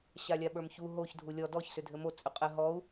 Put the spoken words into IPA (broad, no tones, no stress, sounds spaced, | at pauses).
ɕ a lʲ a ɓ ə˞ m ç u ɦ o ç dʱ u lʲ ɔ d ɔ ç s ʏ dʱ ɘ m o t͡sʼ ʏ qʼ ɘ ɦ ɔ u̯